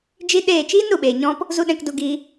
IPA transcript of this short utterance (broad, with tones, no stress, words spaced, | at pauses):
d͡ʒi˦ɗeː˦˨ t͡ʃiː˦nɾu˨ɓeː˨ɲɔ̃˧p | zu˦ɗɛ̃˧kdu˧ɡi˧